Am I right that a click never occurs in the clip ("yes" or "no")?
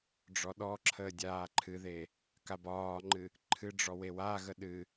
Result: no